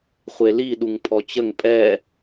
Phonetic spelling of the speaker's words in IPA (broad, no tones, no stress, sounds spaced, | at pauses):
χʷ e l i ɗ u ŋ pʰ ɔ t͡ɕ ə ŋ pʼ ɛ